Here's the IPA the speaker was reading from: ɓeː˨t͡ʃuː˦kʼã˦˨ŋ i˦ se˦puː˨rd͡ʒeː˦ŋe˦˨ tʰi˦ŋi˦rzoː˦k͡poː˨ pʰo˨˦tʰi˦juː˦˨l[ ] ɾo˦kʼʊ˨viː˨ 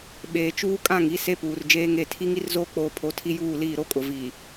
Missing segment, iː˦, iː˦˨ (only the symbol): iː˦˨